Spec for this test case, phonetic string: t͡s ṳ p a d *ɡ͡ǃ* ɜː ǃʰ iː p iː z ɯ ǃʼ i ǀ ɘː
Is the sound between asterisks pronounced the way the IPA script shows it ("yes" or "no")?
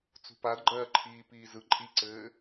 yes